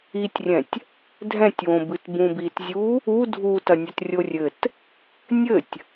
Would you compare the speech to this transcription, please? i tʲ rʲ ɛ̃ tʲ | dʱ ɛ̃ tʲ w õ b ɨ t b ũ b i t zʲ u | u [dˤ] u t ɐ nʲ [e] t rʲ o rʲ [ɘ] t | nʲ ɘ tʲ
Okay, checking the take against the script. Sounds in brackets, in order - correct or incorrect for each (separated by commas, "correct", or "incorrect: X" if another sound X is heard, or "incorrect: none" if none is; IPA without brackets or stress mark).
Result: incorrect: dʱ, incorrect: ɛ, correct